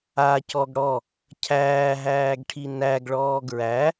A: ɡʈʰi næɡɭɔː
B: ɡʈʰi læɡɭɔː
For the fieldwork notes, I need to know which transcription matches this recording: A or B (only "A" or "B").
A